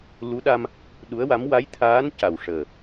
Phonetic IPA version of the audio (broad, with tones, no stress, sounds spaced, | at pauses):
l u˧˥ ɗ a˧ m | ɗ u˧˥ ə̯ w a˧˥ m w a˧˥ j t̪ʰ aː˧˥ n c a˨˩ w ʂ əː˨˩